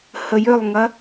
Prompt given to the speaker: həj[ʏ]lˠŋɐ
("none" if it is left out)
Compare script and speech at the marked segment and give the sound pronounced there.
ʏ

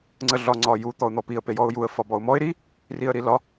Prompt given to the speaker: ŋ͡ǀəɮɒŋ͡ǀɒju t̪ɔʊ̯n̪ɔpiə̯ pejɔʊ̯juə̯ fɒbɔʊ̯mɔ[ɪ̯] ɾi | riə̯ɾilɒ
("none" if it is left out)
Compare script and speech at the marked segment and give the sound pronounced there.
ɪ̯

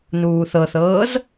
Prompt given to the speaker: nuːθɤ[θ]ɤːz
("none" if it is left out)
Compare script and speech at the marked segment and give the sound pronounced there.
θ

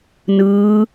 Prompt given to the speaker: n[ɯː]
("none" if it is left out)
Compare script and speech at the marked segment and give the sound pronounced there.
ɯː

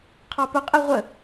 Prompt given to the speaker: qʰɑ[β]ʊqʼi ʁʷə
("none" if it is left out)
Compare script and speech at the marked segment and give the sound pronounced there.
p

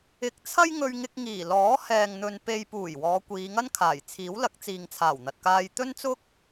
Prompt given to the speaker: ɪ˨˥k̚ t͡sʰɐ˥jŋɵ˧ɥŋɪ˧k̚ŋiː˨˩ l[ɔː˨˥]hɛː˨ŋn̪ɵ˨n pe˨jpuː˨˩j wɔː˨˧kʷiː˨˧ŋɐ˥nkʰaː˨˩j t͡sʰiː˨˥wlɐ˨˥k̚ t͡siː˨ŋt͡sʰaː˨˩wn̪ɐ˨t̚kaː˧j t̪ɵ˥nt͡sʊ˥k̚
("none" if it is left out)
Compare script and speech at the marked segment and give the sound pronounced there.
ɔː˨˥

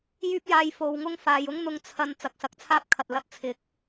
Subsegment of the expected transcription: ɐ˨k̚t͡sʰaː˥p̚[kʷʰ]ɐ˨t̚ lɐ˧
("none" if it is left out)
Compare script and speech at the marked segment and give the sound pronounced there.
kʰ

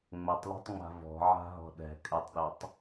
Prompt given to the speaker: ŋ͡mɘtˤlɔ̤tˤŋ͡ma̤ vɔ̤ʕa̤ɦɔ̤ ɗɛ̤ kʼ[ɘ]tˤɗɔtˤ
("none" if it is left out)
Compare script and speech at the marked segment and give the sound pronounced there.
ɘ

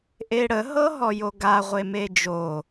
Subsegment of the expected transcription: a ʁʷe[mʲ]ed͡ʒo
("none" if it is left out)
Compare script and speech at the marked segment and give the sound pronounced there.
m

